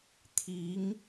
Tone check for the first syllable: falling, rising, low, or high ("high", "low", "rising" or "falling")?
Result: rising